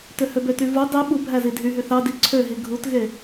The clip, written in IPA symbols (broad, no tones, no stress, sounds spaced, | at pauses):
t ø h ø b ø t y v u dˤ i ɓ u bʱ æ z i dʱ y ɦ y θ ɑ d i ǀʰ ø ɦ i ɡʱ u t ɣ e